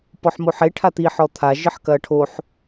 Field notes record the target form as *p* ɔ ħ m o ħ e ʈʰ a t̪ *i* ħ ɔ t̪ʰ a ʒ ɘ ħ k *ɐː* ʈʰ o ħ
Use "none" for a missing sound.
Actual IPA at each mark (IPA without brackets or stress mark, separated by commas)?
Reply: p, i, ɐː